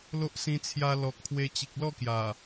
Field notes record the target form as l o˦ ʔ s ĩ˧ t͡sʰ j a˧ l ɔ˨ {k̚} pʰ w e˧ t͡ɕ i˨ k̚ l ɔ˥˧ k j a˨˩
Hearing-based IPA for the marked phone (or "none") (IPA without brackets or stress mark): k̚